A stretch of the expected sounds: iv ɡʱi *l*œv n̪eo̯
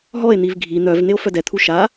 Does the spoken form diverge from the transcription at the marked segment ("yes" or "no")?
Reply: yes